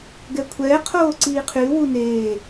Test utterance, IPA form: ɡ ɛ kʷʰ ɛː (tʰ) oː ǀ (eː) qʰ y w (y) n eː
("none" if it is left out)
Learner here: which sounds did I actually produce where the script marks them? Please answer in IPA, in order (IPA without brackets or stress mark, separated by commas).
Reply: qʰ, iː, u